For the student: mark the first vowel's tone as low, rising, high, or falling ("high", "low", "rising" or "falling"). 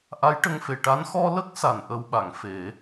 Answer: rising